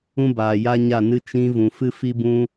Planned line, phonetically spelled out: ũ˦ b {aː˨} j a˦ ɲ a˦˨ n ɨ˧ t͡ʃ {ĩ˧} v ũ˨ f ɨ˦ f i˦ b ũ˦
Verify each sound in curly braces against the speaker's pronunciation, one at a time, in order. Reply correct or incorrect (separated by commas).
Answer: correct, correct